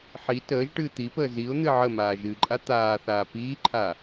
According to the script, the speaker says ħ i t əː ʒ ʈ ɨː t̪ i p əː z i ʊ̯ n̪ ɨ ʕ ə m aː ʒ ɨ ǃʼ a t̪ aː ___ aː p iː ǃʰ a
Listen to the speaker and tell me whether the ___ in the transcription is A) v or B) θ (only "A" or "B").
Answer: B